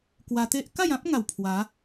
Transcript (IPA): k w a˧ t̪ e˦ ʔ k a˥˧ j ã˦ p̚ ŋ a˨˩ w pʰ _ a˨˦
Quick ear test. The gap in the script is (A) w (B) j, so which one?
A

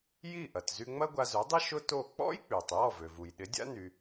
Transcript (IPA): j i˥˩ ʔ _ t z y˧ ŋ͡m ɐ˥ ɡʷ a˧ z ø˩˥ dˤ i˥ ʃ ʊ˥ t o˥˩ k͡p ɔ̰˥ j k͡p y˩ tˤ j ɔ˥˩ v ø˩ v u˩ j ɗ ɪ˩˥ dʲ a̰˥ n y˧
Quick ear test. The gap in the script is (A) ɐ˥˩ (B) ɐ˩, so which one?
B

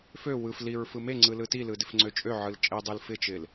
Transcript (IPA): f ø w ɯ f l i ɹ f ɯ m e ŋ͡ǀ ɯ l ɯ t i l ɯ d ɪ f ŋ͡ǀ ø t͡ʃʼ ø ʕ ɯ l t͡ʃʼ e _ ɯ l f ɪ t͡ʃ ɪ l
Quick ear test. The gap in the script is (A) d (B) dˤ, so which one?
B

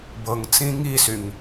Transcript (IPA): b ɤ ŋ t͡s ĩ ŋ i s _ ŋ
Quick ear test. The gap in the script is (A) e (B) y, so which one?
B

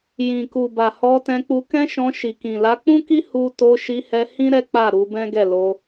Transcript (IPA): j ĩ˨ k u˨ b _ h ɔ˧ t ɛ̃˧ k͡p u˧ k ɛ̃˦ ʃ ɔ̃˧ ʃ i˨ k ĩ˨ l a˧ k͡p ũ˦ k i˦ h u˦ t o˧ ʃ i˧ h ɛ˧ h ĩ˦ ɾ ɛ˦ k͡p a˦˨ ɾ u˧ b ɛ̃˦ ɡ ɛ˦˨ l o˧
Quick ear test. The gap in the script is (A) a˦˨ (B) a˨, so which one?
B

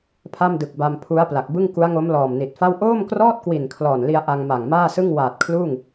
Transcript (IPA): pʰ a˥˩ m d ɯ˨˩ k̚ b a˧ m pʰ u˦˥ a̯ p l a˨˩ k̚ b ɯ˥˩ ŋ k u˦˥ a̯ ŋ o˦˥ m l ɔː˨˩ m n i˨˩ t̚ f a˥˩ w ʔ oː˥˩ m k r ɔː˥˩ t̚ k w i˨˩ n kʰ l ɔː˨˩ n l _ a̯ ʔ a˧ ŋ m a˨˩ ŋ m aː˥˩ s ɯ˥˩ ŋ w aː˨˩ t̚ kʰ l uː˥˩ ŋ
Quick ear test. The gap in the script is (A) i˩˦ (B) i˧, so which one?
B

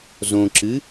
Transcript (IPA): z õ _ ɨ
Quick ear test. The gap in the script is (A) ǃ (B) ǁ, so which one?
B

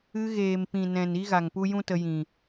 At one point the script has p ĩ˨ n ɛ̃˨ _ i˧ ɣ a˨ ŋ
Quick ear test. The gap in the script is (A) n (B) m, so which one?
A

